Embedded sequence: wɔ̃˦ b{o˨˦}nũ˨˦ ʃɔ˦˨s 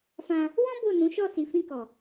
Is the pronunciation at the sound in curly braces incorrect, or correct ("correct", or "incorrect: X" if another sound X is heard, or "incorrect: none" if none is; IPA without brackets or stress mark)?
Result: incorrect: o˦˨